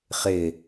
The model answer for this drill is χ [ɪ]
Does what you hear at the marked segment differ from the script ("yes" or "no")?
no